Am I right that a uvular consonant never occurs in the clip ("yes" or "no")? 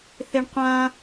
no